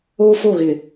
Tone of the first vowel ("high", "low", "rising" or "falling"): high